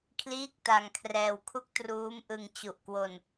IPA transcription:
kʰliː˥˩k̚ta˧ŋkʰrɛː˧w kʰu˦˥k̚ truː˦˥mʔɯ˧ŋ t͡ɕu˨˩ʔkwo˧n

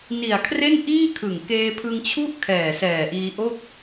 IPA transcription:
ni˨˩a̯kʰre˥˩n ʔiː˥˩kʰɯ˨˩ŋ keː˧pʰɯ˧ŋt͡ɕʰu˥˩ʔ kʰɛː˨˩sɛː˨˩ʔiː˧ʔo˥˩k̚

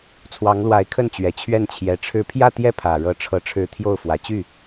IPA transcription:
t͡sʰwɑ˧˥ŋlwa˧˥ɪ̯kʰə˥˩nt͡ɕɥɛ˨˩ t͡ɕʰɥɛ˥˩nt͡ɕʰjɛ˧˥ʈ͡ʂʰɻ̩˥˧ pʰjä˥˧t̪jɛ˥˩ pʰä˨˩ɻɤ˧˥ ʈ͡ʂʰɤ˧˥ʈ͡ʂʰɻ̩˧˥ t̪ʰjo˥˩ʊ̯fwä˨˩ t͡ɕy˥˩

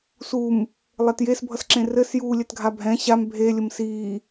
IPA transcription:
sum | lˠɛtjesbʱʌsǁẽ rɘsjuː lʲɛtɡʱabʱɛ̃ ɕam bʱelʲəm siː

